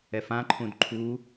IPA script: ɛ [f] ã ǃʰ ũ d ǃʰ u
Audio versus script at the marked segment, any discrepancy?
no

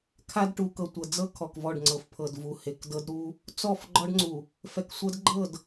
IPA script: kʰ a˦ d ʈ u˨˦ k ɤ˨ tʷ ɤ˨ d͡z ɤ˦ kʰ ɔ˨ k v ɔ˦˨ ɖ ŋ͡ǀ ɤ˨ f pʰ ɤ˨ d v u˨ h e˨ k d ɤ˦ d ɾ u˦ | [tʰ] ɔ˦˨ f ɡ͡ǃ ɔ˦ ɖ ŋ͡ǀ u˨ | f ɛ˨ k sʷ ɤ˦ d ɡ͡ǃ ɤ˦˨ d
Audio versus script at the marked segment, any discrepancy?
yes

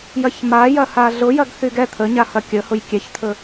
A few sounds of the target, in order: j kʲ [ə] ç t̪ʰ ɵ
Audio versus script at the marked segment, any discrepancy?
yes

